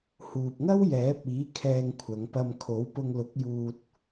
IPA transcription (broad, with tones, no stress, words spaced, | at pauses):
huː˨p̚ŋɐ˥w jɛː˨˥p̚iː˨˥ kʰɛː˧ŋkʷʰɐ˨˧ŋ pɐ˧m kʰo˨˥wpʊ˧ŋlʊ˨˥k̚ juː˧t̚